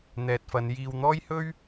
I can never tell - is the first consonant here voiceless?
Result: no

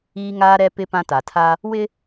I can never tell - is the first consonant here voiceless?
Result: no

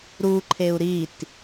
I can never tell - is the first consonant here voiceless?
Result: no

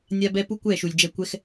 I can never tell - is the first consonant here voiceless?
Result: no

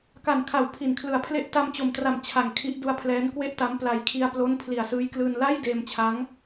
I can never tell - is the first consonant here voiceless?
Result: yes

